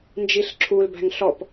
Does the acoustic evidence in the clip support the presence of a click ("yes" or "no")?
yes